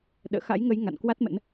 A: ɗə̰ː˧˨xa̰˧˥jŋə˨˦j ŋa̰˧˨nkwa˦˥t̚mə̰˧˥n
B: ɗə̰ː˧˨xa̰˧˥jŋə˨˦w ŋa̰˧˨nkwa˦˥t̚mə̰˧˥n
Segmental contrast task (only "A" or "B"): A